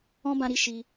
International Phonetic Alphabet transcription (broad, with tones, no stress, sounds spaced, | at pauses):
ɔ̃˦ b ã˧ ɾ i˧ ʃ i˧